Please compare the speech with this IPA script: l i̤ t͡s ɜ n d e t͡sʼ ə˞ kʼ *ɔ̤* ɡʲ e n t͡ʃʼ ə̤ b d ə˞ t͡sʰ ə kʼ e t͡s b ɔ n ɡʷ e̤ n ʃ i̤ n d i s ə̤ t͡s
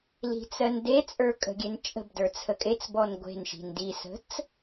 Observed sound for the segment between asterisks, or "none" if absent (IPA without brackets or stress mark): ə̤